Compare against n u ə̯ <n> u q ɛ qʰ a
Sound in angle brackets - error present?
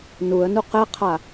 no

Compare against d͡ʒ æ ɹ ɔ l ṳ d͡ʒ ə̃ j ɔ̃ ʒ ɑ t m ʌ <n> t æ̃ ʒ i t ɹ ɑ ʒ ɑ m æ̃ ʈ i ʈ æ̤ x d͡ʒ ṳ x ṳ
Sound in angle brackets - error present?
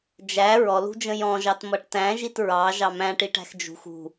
yes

